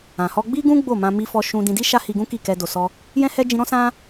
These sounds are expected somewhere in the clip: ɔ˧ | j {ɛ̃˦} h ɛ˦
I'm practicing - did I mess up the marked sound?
no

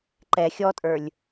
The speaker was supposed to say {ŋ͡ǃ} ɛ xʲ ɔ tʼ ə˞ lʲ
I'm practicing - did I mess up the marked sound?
yes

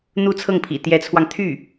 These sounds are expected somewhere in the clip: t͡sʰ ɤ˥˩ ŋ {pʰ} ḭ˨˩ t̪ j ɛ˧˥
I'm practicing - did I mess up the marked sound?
no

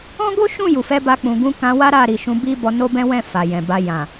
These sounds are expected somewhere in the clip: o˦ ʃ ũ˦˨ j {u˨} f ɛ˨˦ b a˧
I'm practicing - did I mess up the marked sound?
no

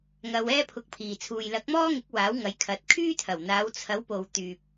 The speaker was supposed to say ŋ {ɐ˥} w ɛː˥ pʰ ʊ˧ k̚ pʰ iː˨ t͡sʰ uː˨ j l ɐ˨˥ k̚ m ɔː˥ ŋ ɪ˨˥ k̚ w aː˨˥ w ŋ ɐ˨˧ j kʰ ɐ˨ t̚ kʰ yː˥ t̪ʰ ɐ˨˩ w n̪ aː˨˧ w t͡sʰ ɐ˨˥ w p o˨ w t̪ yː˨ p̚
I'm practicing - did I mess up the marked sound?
yes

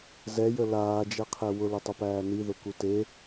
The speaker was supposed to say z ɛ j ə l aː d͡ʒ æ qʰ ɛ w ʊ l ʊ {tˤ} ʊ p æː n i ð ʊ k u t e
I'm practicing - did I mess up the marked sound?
no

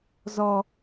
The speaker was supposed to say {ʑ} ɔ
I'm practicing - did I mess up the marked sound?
yes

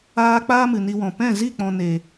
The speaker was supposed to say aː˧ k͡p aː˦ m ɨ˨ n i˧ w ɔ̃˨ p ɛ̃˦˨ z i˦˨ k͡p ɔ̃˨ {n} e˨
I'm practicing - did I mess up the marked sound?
no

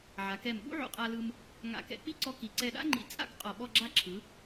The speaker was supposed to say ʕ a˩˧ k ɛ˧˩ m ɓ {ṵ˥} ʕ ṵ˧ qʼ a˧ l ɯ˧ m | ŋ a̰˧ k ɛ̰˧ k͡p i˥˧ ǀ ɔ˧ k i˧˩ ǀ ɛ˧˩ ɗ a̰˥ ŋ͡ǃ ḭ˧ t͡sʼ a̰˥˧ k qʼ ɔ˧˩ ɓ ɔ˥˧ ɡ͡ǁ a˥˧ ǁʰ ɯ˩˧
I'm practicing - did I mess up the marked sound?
no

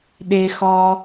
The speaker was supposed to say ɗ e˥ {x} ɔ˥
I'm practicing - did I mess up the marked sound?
no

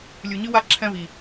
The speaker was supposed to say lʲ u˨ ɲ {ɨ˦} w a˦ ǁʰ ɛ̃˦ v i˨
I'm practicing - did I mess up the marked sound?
no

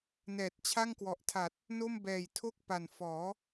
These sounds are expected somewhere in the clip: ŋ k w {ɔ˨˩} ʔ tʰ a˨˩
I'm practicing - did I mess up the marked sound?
no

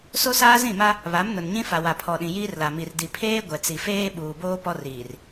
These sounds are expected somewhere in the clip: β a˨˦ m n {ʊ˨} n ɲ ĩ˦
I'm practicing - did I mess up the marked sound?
no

